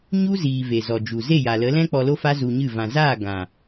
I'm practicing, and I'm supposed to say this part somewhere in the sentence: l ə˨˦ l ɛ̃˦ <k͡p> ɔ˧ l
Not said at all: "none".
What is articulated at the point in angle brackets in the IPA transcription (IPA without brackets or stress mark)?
k͡p